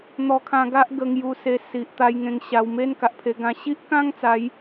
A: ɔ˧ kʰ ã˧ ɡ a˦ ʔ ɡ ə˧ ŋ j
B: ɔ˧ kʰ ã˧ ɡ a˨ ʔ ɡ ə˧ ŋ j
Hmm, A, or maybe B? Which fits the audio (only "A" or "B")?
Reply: A